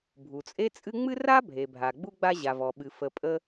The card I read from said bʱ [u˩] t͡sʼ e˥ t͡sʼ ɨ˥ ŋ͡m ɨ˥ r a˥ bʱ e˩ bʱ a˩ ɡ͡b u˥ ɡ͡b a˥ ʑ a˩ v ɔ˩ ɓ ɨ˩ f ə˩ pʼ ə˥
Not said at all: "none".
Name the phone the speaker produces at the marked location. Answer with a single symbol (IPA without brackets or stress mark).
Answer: u˩